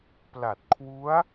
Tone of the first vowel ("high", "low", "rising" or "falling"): low